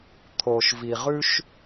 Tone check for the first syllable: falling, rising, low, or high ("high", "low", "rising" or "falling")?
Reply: low